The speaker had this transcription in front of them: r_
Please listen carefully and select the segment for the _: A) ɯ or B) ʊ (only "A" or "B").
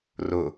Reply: B